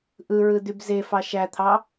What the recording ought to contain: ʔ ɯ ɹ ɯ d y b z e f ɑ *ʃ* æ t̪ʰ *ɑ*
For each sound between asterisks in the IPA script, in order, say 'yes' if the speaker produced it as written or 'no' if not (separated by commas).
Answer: yes, yes